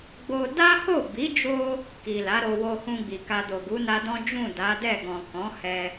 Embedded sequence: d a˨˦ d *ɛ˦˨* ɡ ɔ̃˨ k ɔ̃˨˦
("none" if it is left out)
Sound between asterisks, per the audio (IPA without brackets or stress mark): ɛ˦˨